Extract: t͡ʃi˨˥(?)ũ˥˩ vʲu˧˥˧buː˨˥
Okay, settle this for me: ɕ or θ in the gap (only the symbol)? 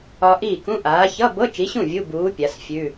ɕ